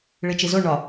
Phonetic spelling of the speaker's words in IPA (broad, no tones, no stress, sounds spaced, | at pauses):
ɭ i t͡ʃ i z o ɳ ɒ